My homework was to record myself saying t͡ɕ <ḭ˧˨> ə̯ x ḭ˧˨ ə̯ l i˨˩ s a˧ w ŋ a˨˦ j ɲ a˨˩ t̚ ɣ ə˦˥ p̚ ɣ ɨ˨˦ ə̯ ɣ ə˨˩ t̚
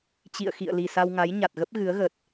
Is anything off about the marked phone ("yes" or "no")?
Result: no